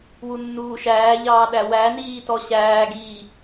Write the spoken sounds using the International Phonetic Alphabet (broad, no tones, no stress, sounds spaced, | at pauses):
w u nː uː ʃ æː ʎ ɑː ɗ æ w æ n iː t ɔ ɕ æː ɡ iː